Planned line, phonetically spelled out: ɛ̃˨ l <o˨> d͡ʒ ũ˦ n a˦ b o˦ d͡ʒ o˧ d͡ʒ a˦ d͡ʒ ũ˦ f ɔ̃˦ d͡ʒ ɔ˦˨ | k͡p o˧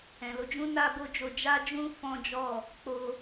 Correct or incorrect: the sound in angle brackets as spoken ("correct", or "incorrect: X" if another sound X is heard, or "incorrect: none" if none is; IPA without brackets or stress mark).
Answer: incorrect: o˧